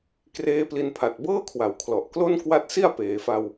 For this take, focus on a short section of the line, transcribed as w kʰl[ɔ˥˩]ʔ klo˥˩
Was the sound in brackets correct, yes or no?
no